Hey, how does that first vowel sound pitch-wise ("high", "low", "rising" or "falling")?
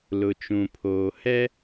low